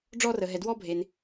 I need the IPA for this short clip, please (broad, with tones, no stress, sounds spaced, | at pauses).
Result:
ɖ͡ʐ ɔ˦ r ə˧ ɦ ɛ˧ d w ɔ˦ bʱ e˧ n